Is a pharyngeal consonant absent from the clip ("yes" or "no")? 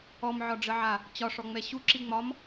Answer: no